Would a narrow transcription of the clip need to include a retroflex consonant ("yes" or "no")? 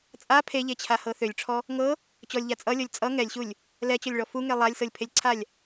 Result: yes